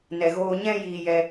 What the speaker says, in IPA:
nɛ˨ɣoː˧ ɲɛ̃˦ jiː˧jɛ˧

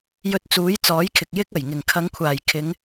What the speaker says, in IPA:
jɵ˧t̚t͡suː˨˥jt͡sɔː˨˥jkʰɪ˨k̚ jɪ˥k̚ɐ˨˩j ŋɪ˨˩ŋkʰɐ˨˧ŋkʷʰaː˨˩j kʰɪ˨˧ŋ

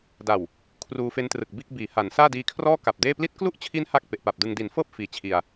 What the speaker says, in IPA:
da˨˩w | kʰruː˧fe˦˥ntrɯ˨˩k̚biː˥˩k̚ biː˩˦ha˩˦nsaː˥˩ diː˧kʰrɔː˥˩ ka˨˩p̚deː˥˩ pli˦˥t̚klu˥˩ʔt͡ɕʰi˦˥n ha˥˩k̚pe˨˩ʔpa˨˩p̚dɯ˧ŋ di˩˦nfɤː˥˩p̚ fiː˨˩t͡ɕʰi˧a̯

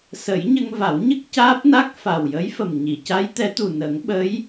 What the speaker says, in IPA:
sə˨˩˦jɲə˧ŋva˨˩˦wɲə˦˥k̚ caː˦˥p̚na˦˥k̚ fa˨˩w jə˧˥jfə˨˩m ɲi˨˩˨ca˧˥jt̪ɛ˧˥t̪u˨˩ nə˨˩˦ŋɓə˧˥j

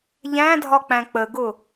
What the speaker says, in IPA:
ʎæ̃dʱɒ k͡pæ̃k͡pəɡʊ

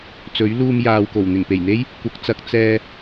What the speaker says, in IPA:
t͡sɵ˨˥ɥluː˧mjaː˨wko˨˩w n̪ɪ˨˩ŋpe˨˩jn̪e˥j | kʷɐ˨˥k̚t͡sɐ˨˥k̚ t͡sɛː˧

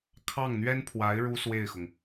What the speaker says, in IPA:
kʰɑ˥˩ŋn̪ɥɛ˥npʰwa˧˥ɪ̯ ɻu˥swe˥˩ɪ̯xʊ˩ŋ

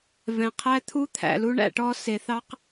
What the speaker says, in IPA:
vɛ̃˧qʰæ˦t̪ʰu˦ t̪ʰæ̰˧lu˦ɳæ̰˧ʈɔ˦ se˧θɑ˦q

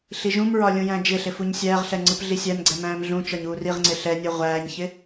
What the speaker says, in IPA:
ɬiʒũmɹɒ lʲũjæ̃d͡ʒɪɬɪ fuɲsʲæːʁɬɛ ŋ͡ǀɯpɮisʲæmɡ͡ǀɛ mæ̃ːmɮũt͡ʃɒɲ uːriʁŋ͡ǀɪ ɬɛnʲɯ ʁʷæːɲçɪ

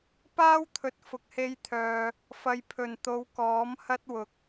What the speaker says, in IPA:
paː˥wt̪ʰɵ˨t̚ fʊ˨k̚he˧jt̪ʰœː˨ | fɐ˨jpʰɵ˨˩nt̪o˨˧wkɔː˨˥m hɐ˥t̚wʊ˨˥k̚

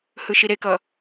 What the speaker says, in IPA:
hɯʃiɾekʌ

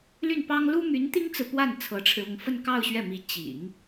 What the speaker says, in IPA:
ly˥˩npɑ˥ŋ lu˥my˧˥n t̪i˥ŋt͡sɹ̩˨ pwa˥˩n t͡sʰɤ˧˥ʈ͡ʂʰɻ̩˧ʊ˥˧ŋ fə˥˧nkɑ˥˧ʊ̯ ɕɥɛ˥˩mi˧˥ t͡ɕḭ˨˩˦ŋ

